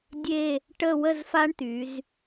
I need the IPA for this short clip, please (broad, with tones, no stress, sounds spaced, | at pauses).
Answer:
dʲ e˥˧ | ʈ ə˥˧ w ə˥˧ z f a˥ ɳ t̪ y˩˧ z